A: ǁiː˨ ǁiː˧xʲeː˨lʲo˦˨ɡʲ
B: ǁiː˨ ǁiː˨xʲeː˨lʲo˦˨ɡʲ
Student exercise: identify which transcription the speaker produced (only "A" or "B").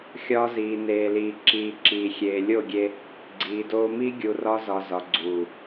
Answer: B